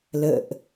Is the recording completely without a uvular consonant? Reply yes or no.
yes